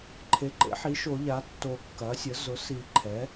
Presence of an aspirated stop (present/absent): present